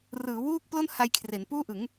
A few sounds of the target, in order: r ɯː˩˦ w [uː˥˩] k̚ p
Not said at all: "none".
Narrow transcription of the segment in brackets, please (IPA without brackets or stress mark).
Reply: uː˥˩